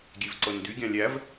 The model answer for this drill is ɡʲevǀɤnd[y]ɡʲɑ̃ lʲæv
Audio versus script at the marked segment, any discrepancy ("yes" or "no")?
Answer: no